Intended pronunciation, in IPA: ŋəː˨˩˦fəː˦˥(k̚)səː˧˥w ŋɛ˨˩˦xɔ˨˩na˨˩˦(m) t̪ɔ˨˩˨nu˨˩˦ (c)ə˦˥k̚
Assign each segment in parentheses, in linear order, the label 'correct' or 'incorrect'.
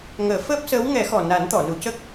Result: incorrect: p̚, incorrect: n, correct

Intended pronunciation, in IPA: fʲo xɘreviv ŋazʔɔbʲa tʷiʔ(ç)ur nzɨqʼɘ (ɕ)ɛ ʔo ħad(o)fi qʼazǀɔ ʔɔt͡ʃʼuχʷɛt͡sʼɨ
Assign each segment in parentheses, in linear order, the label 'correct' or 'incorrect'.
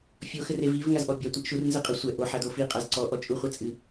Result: incorrect: ʃ, incorrect: sʷ, correct

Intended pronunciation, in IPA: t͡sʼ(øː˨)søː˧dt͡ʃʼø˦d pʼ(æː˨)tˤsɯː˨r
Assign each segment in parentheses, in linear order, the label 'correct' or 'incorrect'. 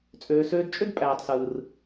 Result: correct, correct

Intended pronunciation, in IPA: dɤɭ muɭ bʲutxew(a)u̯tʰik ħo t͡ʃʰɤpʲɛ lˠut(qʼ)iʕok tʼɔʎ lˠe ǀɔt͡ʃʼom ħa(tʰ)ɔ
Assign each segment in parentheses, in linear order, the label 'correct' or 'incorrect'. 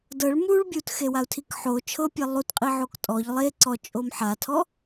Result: correct, correct, correct

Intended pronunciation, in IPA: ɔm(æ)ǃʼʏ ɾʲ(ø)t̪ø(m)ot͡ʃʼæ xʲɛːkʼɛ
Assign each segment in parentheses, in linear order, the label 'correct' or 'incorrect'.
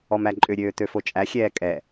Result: correct, incorrect: øː, incorrect: f

